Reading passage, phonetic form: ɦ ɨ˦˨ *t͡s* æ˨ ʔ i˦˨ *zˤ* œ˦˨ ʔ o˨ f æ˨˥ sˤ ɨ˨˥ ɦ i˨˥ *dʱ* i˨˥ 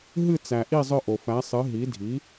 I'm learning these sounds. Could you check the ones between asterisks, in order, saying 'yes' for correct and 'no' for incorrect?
yes, yes, yes

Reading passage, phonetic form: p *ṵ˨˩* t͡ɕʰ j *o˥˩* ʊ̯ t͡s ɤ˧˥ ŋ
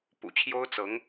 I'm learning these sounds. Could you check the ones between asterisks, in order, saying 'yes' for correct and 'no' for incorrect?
yes, no

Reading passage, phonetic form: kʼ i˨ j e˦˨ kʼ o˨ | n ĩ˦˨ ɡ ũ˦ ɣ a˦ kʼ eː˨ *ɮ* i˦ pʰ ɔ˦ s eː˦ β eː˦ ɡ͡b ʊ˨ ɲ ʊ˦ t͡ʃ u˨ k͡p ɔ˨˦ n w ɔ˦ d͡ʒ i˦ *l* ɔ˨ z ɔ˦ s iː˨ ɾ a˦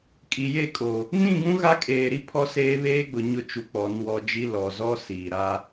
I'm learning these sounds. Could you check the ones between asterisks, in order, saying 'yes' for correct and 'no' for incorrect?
no, yes

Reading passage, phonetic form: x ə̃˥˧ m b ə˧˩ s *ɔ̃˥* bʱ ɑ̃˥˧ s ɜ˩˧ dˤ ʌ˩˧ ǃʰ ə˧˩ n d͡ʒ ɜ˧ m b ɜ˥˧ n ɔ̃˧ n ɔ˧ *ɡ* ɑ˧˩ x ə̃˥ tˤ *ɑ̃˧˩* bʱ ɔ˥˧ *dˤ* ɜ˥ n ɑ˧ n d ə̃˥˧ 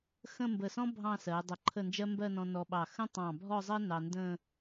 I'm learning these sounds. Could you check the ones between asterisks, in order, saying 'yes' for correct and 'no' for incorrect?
yes, no, yes, no

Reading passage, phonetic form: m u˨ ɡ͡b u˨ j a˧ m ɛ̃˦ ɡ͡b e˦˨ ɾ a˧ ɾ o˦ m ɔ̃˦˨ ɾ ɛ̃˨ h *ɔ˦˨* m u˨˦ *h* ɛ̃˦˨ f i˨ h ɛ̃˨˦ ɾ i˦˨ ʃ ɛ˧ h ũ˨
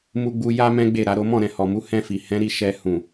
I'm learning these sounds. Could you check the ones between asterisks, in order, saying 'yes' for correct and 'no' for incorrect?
no, yes

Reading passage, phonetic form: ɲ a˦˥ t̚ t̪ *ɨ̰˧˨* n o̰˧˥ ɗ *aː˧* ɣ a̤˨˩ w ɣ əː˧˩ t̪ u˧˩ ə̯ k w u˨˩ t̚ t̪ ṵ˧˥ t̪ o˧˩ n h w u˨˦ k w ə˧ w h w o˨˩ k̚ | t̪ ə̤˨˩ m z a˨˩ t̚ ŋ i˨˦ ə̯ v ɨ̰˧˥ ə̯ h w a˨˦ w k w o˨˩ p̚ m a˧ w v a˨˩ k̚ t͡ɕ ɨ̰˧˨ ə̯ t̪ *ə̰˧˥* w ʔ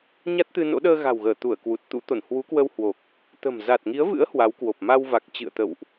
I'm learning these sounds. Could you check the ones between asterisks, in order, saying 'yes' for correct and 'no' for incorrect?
no, no, no

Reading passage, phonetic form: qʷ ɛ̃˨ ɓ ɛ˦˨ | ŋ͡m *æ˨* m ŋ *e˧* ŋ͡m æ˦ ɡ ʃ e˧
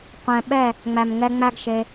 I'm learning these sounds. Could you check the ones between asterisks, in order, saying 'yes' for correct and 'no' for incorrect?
yes, no

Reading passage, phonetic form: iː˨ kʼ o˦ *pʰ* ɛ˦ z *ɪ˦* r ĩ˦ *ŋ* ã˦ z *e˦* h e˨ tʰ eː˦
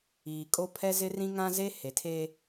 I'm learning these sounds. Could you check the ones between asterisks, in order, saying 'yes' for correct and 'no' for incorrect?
yes, yes, yes, yes

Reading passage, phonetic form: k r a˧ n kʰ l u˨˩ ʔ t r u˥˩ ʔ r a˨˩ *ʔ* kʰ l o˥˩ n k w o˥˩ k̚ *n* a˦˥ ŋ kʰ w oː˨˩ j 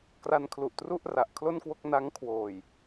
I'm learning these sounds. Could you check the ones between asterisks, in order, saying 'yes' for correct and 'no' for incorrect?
yes, yes

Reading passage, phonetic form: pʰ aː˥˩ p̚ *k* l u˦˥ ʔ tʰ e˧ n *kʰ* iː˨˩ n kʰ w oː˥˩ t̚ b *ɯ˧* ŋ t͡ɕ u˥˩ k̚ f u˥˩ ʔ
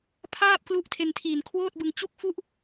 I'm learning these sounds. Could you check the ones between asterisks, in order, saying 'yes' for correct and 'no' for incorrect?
yes, no, yes

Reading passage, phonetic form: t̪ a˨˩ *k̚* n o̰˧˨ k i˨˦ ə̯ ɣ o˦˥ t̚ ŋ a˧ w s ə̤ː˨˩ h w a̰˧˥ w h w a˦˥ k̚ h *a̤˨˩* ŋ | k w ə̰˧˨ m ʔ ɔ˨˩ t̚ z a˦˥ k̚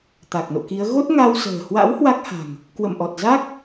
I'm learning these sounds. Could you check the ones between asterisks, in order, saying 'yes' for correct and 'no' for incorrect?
yes, yes

